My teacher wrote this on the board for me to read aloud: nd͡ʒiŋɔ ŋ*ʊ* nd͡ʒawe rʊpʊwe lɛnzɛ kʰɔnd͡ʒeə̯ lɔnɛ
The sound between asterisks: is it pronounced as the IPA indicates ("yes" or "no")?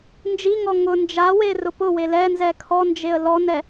yes